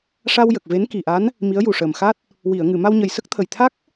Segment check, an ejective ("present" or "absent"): absent